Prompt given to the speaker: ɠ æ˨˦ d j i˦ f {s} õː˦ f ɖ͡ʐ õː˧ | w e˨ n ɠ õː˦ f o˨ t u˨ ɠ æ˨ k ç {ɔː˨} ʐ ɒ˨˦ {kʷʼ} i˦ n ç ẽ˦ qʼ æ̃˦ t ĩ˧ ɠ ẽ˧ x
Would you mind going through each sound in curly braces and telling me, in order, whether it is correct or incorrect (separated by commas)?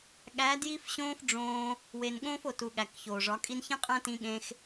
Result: incorrect, incorrect, incorrect